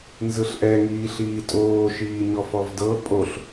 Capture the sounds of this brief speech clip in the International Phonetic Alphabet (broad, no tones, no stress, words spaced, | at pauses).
nzɯɬʔɛ ŋiːɬiːtʼoː ʃiːɲɔfɔvdɤ pʼoɬ